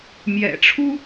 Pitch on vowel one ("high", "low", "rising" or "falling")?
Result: low